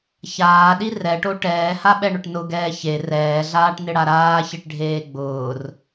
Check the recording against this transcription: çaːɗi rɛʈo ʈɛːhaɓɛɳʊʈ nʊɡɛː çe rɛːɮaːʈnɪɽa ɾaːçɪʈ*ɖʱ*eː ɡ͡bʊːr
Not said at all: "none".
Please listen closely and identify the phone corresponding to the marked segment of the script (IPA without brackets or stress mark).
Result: ɖʱ